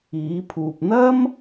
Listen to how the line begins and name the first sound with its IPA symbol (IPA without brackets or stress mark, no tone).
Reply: iː